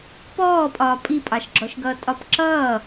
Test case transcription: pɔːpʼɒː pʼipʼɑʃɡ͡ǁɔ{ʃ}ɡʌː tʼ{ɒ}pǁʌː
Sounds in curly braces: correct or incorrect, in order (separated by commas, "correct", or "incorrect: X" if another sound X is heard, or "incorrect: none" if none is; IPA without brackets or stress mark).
correct, correct